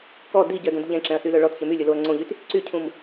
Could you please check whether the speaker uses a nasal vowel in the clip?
yes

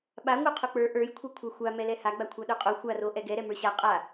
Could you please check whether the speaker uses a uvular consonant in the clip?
yes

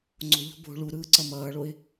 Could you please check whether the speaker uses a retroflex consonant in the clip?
yes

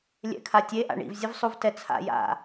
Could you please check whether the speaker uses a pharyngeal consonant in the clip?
no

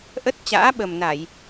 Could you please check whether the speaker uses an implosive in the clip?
yes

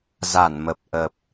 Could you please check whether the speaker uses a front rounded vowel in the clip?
no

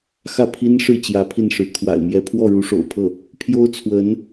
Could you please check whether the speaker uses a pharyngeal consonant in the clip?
no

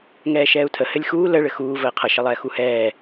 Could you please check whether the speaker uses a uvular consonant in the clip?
yes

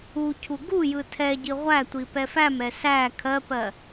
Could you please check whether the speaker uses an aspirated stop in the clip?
yes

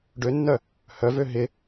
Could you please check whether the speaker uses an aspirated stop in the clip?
no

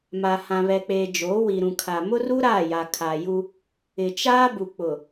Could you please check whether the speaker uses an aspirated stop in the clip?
yes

